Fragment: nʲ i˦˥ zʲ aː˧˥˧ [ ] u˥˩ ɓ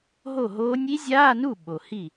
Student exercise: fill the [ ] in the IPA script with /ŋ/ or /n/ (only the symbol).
n